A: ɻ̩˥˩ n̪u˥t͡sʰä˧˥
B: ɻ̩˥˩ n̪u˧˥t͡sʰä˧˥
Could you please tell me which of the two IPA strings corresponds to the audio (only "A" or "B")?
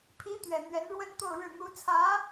B